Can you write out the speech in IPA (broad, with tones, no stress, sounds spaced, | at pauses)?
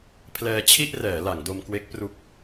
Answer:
pʰ l ɛː˧ t͡ɕʰ i˥˩ ʔ r ɛː˩˦ l a˩˦ ŋ d o˧ m k w e˦˥ k̚ p r u˦˥ k̚